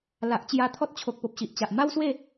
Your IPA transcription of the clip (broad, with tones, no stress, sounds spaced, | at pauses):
l a˨ ʔ t͡ɕ j a˧ t̪ʰ ɔ˦ t̚ t͡ɕʰ o˨ k̚ p o˨ p̚ ɕ i˨ ʔ t͡ɕ a˨ ʔ m a˦ w s w e˥˧